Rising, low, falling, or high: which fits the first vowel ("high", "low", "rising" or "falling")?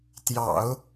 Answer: low